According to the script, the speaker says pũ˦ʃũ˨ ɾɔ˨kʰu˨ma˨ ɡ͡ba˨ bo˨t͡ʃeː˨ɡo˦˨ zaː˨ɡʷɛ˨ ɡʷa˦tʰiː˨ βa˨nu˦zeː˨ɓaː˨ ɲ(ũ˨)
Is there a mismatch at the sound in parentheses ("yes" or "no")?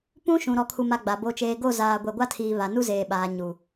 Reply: yes